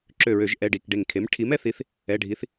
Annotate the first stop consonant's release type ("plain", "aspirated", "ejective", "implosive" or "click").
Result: click